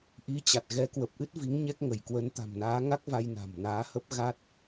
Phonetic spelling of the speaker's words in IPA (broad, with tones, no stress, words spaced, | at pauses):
ʔi˨˦t͡ɕa˨˩t̚ ɣɛ˨˦kwə˨˩p̚ʔɨ˦˥t̚ vi˨˦ŋɲɛ˦˥k̚ŋə˧˩jkwə˨˦n t̪a̤˨˩mnaː˨˦ŋa˦˥k̚ va˧j na̤˨˩mnaː˨˦hə˦˥p̚ ɣa˦˥t̚